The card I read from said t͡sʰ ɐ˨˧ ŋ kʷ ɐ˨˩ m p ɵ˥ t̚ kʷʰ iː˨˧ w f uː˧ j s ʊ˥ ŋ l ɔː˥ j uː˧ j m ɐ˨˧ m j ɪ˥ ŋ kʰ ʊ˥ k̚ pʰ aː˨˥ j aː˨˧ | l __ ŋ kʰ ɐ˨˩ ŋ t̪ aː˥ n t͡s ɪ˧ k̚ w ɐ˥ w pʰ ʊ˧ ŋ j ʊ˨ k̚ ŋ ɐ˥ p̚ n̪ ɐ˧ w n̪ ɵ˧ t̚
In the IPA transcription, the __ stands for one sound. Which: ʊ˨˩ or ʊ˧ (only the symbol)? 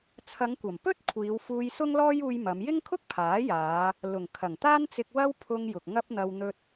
ʊ˨˩